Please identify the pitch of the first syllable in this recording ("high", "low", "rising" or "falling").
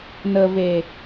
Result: low